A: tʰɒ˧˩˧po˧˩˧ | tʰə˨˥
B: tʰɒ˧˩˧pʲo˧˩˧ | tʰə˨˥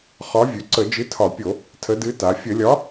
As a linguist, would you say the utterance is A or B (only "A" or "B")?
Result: B